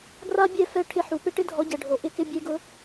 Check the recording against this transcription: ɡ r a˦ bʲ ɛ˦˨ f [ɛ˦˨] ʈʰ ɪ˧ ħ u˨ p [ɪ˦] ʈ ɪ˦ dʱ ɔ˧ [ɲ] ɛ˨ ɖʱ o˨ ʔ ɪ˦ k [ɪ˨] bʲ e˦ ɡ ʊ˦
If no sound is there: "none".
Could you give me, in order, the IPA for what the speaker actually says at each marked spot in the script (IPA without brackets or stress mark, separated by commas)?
ɛ˦˨, ɪ˦, ɟ, ɪ˦